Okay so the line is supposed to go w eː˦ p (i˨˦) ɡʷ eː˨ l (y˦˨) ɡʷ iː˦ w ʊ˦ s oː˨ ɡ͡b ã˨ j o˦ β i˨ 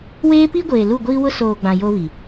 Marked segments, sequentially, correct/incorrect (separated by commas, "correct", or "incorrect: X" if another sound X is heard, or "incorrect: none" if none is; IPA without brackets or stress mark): incorrect: i˦, incorrect: u˦˨